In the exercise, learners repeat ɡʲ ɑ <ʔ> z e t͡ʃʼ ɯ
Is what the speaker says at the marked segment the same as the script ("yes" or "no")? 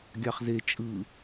no